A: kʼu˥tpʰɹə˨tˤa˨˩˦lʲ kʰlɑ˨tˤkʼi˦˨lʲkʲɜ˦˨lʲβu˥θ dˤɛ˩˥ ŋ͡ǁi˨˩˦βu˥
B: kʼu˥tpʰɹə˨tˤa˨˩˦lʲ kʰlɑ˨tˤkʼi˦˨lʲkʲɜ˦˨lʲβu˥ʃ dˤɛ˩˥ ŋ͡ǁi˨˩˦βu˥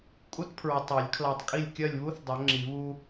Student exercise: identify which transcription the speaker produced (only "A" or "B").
A